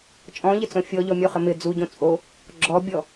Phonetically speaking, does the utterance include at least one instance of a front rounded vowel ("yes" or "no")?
no